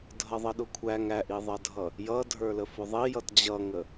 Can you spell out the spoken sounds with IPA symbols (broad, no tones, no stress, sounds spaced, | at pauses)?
dʱ ʌ ðˤ ə ɗ ʊ kʷʰ æ ŋ æ ʔ i ðˤ ʌ dʱ ʌ | j ʌ dʱ ə˞ l ə f ʊ ðˤ i j ʌ t d͡ʑ ʌ ŋ ə